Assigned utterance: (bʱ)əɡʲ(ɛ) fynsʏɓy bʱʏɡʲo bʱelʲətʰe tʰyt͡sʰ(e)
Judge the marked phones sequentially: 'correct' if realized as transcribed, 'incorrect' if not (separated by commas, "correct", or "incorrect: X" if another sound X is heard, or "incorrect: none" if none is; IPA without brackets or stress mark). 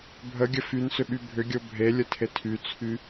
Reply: correct, incorrect: ə, incorrect: y